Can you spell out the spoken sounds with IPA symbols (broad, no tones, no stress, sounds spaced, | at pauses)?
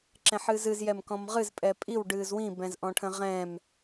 ǁ ɛ̃ ħ ɨː z ɨ z j ɛ m k ɔ̃ m ʁ ɨ z pʼ ɛ pʼ i w ɖ ɨː z w ĩ b ɛ̃ z ʔ ɔ̃ ʈʰ ə̃ ʁ ɛ̃ m